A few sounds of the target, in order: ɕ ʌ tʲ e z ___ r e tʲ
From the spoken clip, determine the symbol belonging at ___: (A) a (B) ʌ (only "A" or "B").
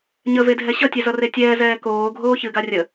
B